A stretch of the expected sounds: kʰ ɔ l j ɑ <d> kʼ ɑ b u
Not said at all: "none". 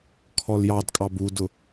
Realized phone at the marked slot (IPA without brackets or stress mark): d